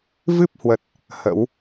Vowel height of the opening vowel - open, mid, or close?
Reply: close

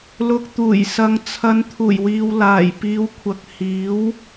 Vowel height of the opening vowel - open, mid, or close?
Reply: close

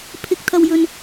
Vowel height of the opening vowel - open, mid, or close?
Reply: close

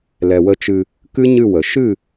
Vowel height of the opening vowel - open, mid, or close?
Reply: mid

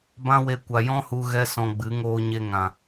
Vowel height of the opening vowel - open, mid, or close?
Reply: open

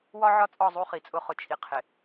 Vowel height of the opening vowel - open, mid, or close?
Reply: open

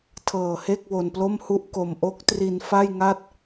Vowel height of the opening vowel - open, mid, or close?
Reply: mid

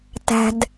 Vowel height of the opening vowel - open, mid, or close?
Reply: open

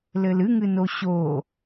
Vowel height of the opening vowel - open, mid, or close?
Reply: mid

